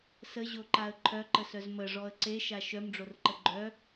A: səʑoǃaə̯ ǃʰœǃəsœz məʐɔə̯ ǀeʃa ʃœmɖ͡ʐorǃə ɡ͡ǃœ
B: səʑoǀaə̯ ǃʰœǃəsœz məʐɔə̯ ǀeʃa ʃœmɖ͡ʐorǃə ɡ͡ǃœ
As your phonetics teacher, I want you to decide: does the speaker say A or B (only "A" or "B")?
A